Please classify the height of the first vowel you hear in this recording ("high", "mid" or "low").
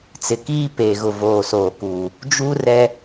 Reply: high